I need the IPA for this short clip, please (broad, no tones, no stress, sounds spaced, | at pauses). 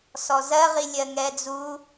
s ɔ z ɜ ʁ i lʲ ɜ ŋ ɛ d͡z u